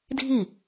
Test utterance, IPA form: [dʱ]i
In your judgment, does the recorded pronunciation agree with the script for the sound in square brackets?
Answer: yes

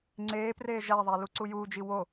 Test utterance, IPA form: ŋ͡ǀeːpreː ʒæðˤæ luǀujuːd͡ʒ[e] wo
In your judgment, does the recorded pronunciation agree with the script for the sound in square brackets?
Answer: no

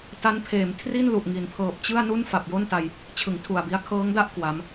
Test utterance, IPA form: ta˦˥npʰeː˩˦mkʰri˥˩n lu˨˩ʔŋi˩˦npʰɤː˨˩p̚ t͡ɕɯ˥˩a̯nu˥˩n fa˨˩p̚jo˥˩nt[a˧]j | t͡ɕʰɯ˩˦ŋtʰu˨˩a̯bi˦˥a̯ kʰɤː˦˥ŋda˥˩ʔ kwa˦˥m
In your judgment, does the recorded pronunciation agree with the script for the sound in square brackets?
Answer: yes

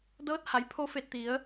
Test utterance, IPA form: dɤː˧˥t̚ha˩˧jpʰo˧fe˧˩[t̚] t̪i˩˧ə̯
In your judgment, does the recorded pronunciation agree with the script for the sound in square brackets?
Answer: yes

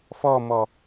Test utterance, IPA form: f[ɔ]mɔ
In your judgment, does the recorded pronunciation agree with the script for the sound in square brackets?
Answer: yes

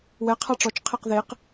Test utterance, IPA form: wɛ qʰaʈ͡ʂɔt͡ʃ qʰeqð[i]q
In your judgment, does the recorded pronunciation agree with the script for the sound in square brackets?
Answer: no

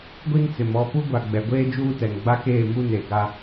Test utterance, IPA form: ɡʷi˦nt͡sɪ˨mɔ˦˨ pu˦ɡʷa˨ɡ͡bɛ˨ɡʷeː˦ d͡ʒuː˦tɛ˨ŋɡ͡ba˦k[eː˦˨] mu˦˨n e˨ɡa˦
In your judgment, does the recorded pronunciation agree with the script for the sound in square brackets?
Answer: yes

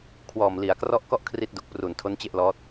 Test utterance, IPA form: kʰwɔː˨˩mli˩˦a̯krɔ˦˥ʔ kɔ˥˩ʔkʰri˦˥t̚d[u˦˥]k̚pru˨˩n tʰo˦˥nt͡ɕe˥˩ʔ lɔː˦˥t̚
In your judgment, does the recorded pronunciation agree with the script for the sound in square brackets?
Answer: no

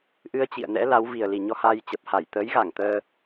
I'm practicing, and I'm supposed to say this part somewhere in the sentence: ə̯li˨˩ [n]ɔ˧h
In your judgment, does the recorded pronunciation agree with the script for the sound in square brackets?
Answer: no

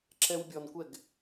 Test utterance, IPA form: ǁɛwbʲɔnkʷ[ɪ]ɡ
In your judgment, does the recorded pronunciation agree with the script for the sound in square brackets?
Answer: no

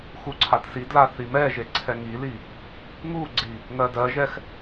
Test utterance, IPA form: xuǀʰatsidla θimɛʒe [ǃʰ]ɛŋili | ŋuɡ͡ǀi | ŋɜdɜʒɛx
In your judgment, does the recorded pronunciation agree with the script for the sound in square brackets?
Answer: no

